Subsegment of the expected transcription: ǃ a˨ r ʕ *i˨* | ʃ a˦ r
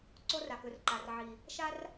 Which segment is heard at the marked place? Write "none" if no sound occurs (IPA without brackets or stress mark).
i˨